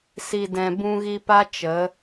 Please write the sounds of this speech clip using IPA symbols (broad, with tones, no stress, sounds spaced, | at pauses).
s i˨ d ɛ̃˨ b ũ˧ ɣ i˧ p a˦ t͡ʃ ə˨˦